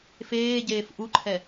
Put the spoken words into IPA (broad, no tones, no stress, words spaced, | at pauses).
feːɟeːf ʔuǃʰɛ